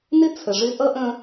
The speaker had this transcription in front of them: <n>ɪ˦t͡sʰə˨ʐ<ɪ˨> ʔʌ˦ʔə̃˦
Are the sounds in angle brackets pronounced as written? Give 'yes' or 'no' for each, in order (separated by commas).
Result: yes, no